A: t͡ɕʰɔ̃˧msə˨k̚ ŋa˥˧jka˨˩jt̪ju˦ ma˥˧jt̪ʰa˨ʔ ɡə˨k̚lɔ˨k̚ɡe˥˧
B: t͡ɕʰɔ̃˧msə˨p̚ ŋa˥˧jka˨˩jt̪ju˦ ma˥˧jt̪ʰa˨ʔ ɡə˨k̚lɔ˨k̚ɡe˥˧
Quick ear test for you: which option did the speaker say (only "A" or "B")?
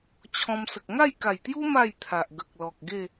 A